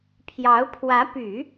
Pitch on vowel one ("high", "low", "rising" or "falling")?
rising